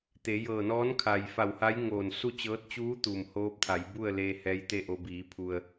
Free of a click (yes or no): yes